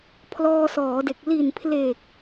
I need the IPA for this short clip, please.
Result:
pʰ l ɔː˧ s ɔː˩˦ d e˨˩ k̚ l i˨˩ n pʰ l e˨˩ k̚

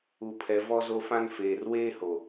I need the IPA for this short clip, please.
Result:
u˨ pʰ ɛ˨ v ɔ˦ z o˦ f ã˦ n f eː˨ r w eː˦ h o˨

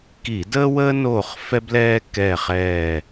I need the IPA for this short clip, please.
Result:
k i˧˩˧ d əː˥ w əː˥ n oː˦˨ χ f ɛ˥ b l ɛː˥ k ɛ˦˨ χ ɛː˦˨

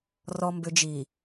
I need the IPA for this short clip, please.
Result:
r ɔ˨ m b ʏ˨ d͡ʒ i˨

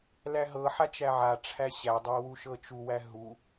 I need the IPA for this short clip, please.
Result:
l æ ɦ ɤ ħ a t͡ʃ æ ʕ a ʈ͡ʂʰ æ ɕ æ dˤ æ w u ʃ ɤ t͡ʃ u w æ ɦ u

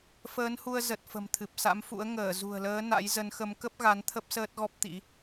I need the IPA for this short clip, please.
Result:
f əː˨˦ n h u˧ ə̯ z ə˨˩ t̚ f ə̤˨˩ m t̪ʰ ɨ˨˩ p̚ s a̰˧˥ m f ṵ˧˥ ə̯ ŋ əː˧˩ z ṳ˨˩ ə̯ l əː˨˦ n a̰˧˥ j z ə˨˦ n x ə˨˦ m k ə˦˥ p̚ ɣ a˨˦ n t̪ʰ ə˦˥ p̚ s əː˦˥ t̚ ɣ ɔ˦˥ p̚ t̪ ḭ˧˥

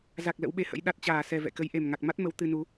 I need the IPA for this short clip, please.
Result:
z a˨˩ k̚ l ə̰˧˥ w ɓ e˨˦ h ə̰˧˥ j ɗ a˨˩ t̚ t͡ɕ aː˧˩ s ɛ˨˩ v ɛ̰˧˨ k ə˨˦ j ʔ e˨˩ m ŋ a˨˩ k̚ m a˦˥ t̚ m ə˨˦ w t̪ ɨ˧ n u˨˦

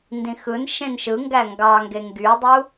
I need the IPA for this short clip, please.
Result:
n d ĩ x ɯ n ʃ ẽ n ʃ ɯ ŋ ɡ æ ŋ ɡ ɑ ŋ ɡ e ŋ ɡ y dˤ u

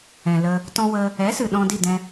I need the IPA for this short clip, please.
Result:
ɛ̃˨ l ə˧ | t ɔ̃˧ w ə˧ | ɛ˨˦ s ɨ˨ ɗ ɔ̃˧ d i˦˨ d ɛ̃˧

